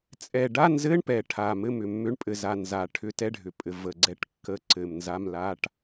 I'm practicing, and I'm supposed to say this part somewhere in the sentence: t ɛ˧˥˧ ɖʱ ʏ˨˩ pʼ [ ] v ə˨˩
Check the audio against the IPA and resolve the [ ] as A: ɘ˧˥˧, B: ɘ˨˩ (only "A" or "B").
B